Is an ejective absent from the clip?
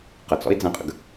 no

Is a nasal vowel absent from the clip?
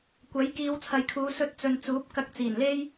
yes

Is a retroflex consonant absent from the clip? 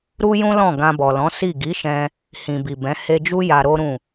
yes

